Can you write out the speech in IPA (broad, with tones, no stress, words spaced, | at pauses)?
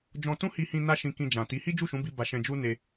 d͡ʒɔ̃˧tũ˦hi˧hĩ˧ na˦ʃĩ˧kĩ˧d͡ʒã˨ ti˨˦ hi˦d͡ʒu˦˨ʃũ˨˦bi˧ ba˧ʃɛ̃˧d͡ʒu˦ne˧